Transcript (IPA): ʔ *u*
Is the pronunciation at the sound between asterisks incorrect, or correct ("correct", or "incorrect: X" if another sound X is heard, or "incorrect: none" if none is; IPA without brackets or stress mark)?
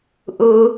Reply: correct